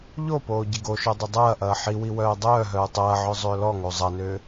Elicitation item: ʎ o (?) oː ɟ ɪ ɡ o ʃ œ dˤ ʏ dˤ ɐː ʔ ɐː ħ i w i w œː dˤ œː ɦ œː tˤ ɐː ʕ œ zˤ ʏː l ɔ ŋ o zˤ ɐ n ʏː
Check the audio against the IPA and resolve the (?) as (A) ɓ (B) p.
B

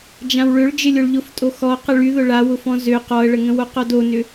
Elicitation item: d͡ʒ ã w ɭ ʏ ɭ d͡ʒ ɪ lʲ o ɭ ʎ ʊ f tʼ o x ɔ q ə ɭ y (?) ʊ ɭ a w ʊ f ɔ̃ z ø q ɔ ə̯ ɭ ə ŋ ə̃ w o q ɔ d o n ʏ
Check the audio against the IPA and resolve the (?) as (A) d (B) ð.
B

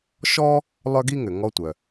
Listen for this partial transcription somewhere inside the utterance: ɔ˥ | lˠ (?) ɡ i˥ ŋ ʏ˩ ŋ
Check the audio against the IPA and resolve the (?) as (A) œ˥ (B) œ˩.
A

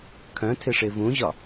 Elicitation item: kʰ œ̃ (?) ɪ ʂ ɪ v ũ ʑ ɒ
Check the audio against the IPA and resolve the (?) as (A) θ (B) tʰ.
B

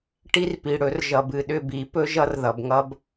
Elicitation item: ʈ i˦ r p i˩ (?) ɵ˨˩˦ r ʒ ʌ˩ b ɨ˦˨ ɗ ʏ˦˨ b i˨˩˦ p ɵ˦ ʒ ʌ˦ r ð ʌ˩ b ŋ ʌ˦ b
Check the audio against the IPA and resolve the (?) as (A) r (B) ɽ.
B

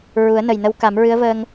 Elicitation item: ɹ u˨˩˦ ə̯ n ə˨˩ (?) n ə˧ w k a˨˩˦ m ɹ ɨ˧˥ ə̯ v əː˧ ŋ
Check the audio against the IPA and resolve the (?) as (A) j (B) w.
A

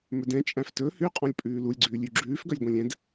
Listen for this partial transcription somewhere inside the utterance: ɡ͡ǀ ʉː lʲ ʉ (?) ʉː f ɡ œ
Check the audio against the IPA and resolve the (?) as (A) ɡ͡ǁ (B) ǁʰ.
A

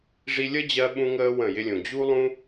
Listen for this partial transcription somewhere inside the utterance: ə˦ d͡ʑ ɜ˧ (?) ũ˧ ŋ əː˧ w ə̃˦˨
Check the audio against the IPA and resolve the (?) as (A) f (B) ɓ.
B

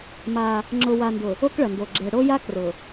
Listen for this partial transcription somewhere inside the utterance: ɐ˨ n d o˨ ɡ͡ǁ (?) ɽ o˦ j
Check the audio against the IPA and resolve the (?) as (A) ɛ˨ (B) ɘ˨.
A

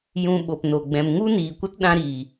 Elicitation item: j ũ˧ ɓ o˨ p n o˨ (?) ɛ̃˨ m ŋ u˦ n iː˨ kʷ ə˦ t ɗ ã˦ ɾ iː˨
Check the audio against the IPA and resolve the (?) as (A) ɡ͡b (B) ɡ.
A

